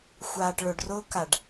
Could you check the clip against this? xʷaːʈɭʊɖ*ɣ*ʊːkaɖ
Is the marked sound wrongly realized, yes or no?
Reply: yes